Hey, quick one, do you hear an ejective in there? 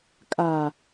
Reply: yes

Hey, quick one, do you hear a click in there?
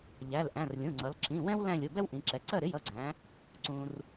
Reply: yes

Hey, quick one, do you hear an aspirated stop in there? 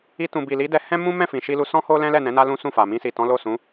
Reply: no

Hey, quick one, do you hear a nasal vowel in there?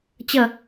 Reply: no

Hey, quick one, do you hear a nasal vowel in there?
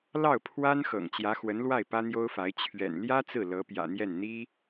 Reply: no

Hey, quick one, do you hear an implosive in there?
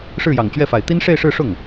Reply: no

